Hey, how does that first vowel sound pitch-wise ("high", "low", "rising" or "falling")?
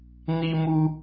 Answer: high